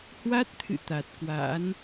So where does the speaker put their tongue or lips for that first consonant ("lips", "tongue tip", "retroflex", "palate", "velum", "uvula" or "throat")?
throat